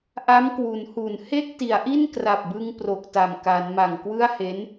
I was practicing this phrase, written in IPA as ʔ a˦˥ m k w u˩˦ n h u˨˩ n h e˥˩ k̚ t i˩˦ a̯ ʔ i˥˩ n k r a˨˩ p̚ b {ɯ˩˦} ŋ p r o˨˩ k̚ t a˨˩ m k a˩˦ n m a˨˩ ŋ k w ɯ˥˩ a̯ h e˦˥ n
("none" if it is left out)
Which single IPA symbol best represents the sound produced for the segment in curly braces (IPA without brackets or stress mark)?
ɯ˧